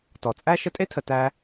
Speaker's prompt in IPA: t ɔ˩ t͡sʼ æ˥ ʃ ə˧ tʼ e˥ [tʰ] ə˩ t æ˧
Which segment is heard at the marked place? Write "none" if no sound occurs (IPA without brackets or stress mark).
tʰ